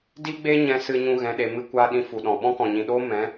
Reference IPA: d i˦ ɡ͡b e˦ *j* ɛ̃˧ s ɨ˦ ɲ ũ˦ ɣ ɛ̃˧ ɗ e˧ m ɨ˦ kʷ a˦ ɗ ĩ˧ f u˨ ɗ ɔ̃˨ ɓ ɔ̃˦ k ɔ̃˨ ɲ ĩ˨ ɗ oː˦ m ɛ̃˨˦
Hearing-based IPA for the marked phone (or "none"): ɲ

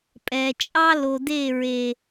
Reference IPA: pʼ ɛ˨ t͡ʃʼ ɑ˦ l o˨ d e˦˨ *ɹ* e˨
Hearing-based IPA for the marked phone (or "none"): ɹ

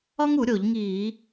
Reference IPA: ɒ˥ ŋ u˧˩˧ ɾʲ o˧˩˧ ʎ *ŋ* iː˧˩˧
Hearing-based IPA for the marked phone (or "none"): ŋ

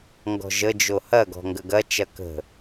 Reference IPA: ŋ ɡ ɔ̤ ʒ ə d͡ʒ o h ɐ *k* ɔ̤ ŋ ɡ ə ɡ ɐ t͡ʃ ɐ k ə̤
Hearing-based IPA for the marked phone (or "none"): ɡ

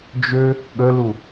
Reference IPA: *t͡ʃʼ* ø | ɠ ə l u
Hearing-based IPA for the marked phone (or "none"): d͡ʒ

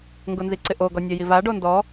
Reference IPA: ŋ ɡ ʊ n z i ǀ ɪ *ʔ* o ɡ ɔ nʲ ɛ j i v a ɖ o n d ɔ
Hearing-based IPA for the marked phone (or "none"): ʔ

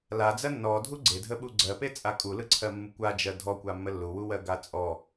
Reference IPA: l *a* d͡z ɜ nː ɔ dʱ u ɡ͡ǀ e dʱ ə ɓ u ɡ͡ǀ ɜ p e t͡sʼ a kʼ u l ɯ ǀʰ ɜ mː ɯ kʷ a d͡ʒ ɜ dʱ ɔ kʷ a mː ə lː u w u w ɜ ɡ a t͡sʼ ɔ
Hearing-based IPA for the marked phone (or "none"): a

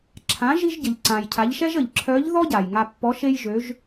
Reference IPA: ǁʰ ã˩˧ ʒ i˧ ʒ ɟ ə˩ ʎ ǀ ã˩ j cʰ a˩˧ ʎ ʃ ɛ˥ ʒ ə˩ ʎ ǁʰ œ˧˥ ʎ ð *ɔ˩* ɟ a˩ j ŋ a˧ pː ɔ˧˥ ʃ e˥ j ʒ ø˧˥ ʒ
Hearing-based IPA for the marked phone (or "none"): ɔ˥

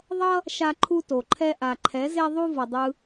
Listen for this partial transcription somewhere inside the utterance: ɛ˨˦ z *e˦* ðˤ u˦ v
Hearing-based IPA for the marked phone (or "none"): e˦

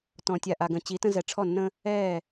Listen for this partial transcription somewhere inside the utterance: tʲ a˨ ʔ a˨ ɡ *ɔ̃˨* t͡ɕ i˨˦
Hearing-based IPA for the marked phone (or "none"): ə̃˨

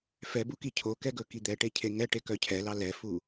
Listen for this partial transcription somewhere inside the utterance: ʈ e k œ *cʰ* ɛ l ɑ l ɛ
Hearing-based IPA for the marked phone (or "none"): cʰ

